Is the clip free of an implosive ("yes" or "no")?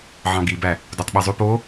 no